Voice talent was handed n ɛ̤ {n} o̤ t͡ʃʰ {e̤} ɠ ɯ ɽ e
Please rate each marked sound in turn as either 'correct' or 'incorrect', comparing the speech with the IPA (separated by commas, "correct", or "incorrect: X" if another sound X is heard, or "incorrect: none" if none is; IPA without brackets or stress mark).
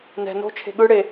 correct, correct